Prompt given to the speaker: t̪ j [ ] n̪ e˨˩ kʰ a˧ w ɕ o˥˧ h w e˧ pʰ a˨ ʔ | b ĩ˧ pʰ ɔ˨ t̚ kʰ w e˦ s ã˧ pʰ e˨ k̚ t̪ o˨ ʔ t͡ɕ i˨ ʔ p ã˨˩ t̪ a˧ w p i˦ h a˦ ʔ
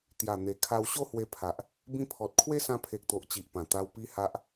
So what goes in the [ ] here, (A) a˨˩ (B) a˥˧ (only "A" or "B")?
A